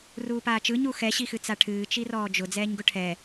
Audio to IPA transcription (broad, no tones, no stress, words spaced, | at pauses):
ruːpaːt͡ʃɯ ɲuxɛ ɕixɨt͡saʈʰɨː t͡ʃirɔːd͡ʒʊ d͡zɛːɲɡʊʈʰɛ